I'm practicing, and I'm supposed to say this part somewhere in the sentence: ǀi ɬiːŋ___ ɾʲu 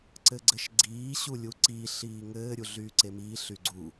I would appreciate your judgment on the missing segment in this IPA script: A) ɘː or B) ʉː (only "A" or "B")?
A